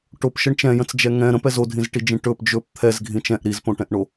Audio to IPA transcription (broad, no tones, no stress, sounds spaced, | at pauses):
ʈ o p ʃ ə ɳ t͡ʃ ɛ̃ j ə̃ t͡s d͡ʒ ɛ ŋ ɛ̃ ɾ ə̃ p ɛ z o dʱ ĩ z ʈ i d͡ʒ ĩ ʈ ɵ p d͡ʒ ɵ p t̪ʰ ɛ z ɡʱ ĩ t͡ʃ ɛ̃ ʔ ɾ i z p õ ʈ ɛ̃ ʔ ɳ o